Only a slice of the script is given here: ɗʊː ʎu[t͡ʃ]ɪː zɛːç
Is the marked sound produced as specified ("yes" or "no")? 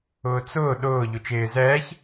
yes